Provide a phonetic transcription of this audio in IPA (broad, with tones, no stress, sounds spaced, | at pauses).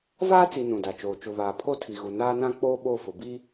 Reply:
v aː˦ t͡s i˨ n ũ˨ d a˨ t͡ʃ oː˨ t͡ʃ ʊ˨ β aː˨ pʰ o˦ tʰ i˨ ɣ u˨ n aː˦ n ã˦ k͡p oː˦ ɓ o˦˨ f ʊ˨ b i˦